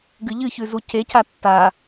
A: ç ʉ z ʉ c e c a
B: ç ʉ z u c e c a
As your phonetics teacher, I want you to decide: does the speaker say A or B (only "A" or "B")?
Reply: B